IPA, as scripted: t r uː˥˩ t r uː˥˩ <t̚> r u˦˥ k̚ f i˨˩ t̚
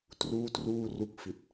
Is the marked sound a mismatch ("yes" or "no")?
yes